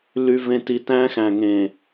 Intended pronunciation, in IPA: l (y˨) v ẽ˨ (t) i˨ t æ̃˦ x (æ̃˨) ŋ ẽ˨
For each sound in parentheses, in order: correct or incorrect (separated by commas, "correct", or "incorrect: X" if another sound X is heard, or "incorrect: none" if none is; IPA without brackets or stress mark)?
correct, correct, correct